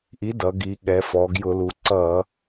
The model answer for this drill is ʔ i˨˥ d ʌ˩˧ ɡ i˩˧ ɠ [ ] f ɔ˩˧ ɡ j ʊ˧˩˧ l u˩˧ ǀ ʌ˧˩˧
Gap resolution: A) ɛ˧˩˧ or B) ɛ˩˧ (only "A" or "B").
B